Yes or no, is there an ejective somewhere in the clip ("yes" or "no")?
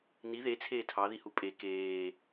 yes